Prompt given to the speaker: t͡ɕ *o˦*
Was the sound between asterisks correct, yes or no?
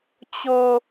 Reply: no